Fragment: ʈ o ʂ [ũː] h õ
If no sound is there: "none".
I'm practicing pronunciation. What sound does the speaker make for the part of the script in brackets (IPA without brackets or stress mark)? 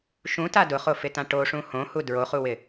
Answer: ũ